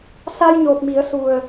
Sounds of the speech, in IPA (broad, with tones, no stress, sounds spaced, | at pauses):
s a˧ j ɲ o˨˩ k̚ m i˨˩˦ ə̯ s u˨˩ ə̯